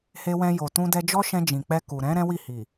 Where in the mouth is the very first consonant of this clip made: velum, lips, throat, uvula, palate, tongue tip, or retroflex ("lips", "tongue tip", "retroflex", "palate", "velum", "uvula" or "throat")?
throat